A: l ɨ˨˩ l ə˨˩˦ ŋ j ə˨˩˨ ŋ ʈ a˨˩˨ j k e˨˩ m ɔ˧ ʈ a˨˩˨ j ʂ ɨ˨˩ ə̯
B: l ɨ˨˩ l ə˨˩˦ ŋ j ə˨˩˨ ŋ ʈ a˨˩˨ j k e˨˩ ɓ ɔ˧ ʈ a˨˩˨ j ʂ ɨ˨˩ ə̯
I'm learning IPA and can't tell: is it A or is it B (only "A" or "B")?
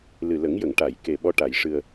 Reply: B